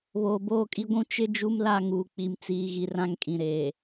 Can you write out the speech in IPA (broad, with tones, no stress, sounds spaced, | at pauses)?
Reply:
β oː˨ b oː˦˨ kʼ i˦ ɡʷ ũ˦ t͡ʃ ɪ˦ d͡ʒ u˦ m l a˦˨ ŋ uː˨ k͡p i˨ m t͡s iː˨ ɣ i˨ r ã˦ ŋ kʼ ĩ˨ ɾ eː˨